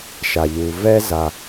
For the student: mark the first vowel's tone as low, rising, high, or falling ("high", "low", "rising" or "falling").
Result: low